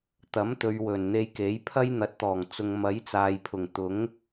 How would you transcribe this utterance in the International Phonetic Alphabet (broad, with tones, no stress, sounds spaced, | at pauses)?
t̪ ɐ˨˥ m t̪ ɵ˨ ɥ w ɵ˨˩ n n̪ e˧ j k e˨˥ j pʰ ɐ˥ j n̪ ɐ˨˥ t̚ t̪ ɔː˨˩ ŋ t͡s ʊ˧ ŋ m ɐ˨˥ j t͡s aː˨ j pʰ ʊ˨˩ ŋ t̪ ʊ˨˥ ŋ